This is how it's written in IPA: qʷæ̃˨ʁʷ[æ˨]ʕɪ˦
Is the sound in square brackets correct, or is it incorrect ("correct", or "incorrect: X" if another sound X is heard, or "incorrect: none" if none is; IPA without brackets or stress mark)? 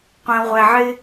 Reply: correct